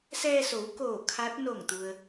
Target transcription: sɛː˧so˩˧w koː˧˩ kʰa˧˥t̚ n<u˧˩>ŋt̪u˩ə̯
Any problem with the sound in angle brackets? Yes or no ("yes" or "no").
yes